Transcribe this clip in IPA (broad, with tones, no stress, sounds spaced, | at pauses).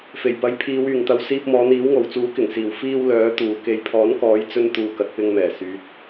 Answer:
f e˨˩ j p ɐ˨˥ j pʰ iː˨˧ w yː˨˩ ŋ t̪ ɐ˨ w s iː˧ p̚ m ɔː˨˧ n̪ iː˨˥ w ŋ o˨ w t͡s uː˨˥ k ɪ˨˩ ŋ s iː˨˩ w f iː˧ w l œː˨˥ t̪ uː˨ k e˨ j pʰ ɔː˨˥ n k ɔː˨˥ j t͡s ɵ˧ n t̪ uː˨ k ɐ˨ t̚ p ɪ˧ ŋ m ɛː˨˩ s yː˨˥ t̚